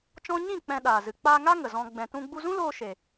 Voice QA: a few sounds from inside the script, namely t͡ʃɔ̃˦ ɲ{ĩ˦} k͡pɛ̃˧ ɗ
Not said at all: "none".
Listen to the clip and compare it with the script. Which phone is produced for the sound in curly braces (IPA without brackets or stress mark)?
ĩ˦˨